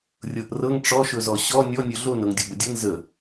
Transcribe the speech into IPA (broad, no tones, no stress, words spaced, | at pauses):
rʲɤʔrɤŋ ʈ͡ʂɔʃɵzɔ ɕɔ nʲɔnʲɵ ɮonɤŋ dʲobədʲɤn zə